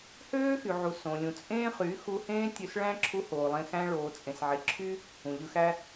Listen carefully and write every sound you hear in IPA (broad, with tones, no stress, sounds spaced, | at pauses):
h øː˦ x y˨ ʕ u˨ s õ˨ lʲ ũ˨ t͡sʼ ẽː˦ χ y˨˦ x u˧ h ẽː˦ tʲ ø˧ s ɭ æ̃˦ ǁʰ u˧ h oː˨ lˠ ẽ˧ x æ̃˦ ɭ oː˨ t͡sʼ ẽ˨ s ʕ e˨ ǁʰ y˦ | ũ˨ ʎ ɯ˧ x æ˦